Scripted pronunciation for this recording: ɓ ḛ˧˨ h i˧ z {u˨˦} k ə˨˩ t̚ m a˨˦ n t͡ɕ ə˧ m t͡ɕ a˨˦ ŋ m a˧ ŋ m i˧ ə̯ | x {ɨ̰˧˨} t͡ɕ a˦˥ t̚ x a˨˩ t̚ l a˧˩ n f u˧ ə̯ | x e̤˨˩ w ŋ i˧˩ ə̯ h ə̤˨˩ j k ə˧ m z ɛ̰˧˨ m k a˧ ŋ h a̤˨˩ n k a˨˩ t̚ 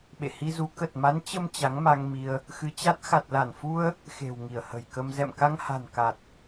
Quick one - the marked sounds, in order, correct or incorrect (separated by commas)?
correct, incorrect